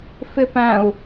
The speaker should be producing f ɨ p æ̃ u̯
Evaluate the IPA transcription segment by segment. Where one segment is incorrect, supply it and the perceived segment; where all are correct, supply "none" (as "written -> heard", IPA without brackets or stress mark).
ɨ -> ɪ